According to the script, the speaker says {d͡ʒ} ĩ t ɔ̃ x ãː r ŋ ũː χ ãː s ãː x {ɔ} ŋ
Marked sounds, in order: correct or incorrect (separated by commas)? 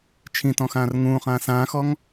incorrect, correct